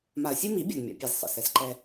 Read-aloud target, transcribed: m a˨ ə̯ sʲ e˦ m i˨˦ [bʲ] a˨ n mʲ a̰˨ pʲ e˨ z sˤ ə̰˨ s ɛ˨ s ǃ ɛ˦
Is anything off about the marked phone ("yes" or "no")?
no